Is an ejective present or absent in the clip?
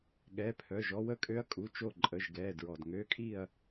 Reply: present